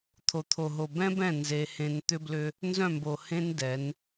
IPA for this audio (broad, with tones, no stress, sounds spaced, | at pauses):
t̪ʰ o˨ t̪ʰ o˨ ɦ o˨ b ɛ̃˦ b ɛ̃˦˨ n z e˦ h ẽ˦ n t̪ ʏ˦ b l ʏ˦ | n z œ̃˦˨ m b o˨ h ẽ˦ n d ɛ˨˦ n